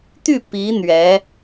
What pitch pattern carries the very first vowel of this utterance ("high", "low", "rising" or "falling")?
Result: falling